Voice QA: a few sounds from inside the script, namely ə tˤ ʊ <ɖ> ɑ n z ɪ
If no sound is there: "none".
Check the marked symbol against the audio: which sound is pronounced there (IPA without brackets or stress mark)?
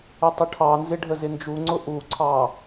ʈʰ